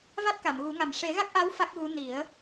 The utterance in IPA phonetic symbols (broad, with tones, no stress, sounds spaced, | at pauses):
v a˦˥ t̚ k a˨˩˨ m ɣ u˨˩˦ ŋ a˨˩ m ʂ e˨˩˦ ɣ a˦˥ k̚ ʔ a˧˥ w f a˦˥ k̚ ɣ u˧˥ n i˨˩˦ ə̯